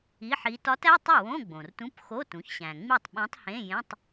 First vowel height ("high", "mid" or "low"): high